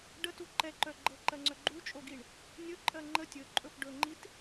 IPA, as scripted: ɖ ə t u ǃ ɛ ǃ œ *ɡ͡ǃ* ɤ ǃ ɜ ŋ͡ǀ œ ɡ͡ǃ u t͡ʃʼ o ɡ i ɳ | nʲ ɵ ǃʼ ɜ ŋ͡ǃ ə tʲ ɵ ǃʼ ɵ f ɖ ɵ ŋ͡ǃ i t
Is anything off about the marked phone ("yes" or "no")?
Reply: no